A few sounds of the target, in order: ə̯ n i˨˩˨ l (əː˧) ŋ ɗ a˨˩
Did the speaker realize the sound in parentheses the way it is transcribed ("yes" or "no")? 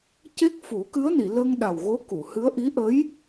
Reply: no